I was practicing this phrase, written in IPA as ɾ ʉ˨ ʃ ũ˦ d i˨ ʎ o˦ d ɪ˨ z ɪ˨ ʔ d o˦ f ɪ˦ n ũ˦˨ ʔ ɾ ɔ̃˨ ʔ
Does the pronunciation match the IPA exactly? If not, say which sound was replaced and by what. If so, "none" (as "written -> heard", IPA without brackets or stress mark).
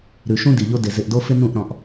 none